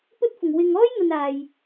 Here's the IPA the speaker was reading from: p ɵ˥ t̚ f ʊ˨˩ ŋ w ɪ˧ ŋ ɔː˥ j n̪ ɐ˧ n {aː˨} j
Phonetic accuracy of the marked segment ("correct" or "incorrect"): correct